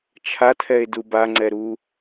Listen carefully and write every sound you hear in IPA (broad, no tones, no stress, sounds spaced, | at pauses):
t͡ʃʰ a tʰ ɛ e̯ d u b a ŋ͡ǀ ɛ ɾ u